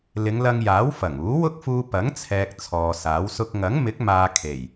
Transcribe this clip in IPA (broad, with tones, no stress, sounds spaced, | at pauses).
l ɪ˨˧ ŋ l ɐ˧ ŋ j aː˨˥ w f ɐ˨˩ ŋ uː˨˥ w ʊ˥ k̚ f uː˧ p ɐ˨˥ ŋ t͡sʰ ɛː˨ k̚ t͡sʰ ɔː˨ s aː˨˥ w s ʊ˥ k̚ ŋ ɐ˨˥ ŋ m ɪ˨˥ k̚ m aː˨ kʰ e˨˩ j